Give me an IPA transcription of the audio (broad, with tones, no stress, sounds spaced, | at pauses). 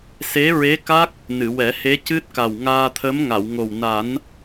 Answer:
s e˧˥ ɹ e˧˥ k a˦˥ k̚ | n ɨ˨˩˨ w ɛ˨˩˦ h e˧˥ c ɨ˦˥ t̚ k a˨˩ w ŋ aː˧ t̪ʰ ə˧˥ m ŋ a˨˩˨ w ŋ o˨˩ w n a˨˩˦ n